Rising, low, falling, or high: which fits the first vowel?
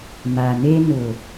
low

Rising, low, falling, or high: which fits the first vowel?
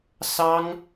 high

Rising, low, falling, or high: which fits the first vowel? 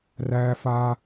high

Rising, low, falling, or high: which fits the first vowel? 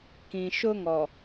low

